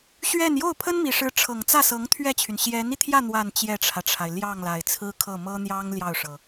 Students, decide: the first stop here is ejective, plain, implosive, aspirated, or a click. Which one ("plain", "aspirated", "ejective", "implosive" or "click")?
aspirated